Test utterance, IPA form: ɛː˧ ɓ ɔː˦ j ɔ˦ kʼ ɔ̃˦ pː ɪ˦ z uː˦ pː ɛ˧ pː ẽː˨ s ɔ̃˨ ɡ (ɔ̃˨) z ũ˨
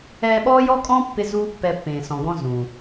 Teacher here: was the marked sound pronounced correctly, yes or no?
no